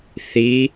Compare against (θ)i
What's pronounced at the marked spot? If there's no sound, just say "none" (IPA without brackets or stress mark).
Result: θ